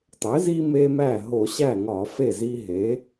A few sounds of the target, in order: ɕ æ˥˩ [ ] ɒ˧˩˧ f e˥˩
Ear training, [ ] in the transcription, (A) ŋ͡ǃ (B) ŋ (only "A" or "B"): B